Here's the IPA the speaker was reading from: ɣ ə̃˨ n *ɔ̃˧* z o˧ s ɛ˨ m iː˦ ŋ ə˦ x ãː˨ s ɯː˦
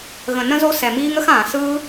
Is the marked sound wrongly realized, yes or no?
yes